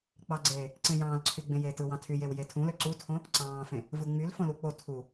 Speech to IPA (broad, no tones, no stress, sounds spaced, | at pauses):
k͡p ɑ ɡ͡ǀ eː | ǀ ẽ j ɑ̃ː l ǀʰ y ɡ͡b ẽ j eː t ɯ w ɑ̃ tʰ y j e w j e tʰ ũ l ø ǀ u tʰ õ | ǀ ɑ̃ː f ẽ | v ɯ ŋ͡m y l f õ l u k͡p o tʰ u